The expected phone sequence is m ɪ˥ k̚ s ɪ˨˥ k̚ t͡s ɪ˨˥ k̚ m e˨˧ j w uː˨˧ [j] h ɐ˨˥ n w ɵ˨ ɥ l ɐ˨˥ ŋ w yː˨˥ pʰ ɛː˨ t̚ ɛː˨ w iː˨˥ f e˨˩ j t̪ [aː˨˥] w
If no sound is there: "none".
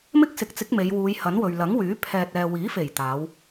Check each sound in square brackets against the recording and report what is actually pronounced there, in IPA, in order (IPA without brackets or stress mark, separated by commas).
j, aː˨˧